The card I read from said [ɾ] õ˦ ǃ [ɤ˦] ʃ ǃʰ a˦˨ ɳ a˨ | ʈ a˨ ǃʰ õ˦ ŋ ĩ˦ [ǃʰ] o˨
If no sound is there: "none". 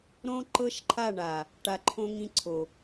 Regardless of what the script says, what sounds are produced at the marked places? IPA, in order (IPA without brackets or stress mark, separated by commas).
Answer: ɾ, ɤ˦, ǀʰ